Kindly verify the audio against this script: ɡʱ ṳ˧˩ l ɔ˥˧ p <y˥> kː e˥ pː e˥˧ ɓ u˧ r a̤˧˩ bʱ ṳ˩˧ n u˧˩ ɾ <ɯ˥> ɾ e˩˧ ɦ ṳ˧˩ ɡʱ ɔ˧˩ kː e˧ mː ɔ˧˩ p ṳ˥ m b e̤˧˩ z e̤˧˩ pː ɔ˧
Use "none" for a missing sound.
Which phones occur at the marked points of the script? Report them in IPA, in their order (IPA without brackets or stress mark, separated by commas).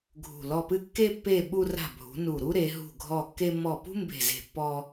ɨ˥, u˥